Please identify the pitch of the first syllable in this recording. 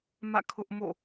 falling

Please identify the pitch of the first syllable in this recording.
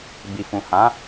low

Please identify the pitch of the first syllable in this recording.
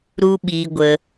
high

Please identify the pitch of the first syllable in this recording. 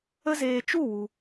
high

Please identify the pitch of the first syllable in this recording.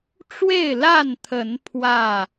falling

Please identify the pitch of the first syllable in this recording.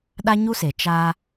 high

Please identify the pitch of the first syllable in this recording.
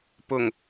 low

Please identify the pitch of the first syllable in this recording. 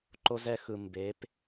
high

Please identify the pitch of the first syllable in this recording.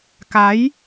rising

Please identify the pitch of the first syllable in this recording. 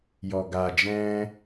low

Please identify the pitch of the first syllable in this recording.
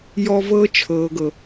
high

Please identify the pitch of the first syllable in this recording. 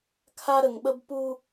high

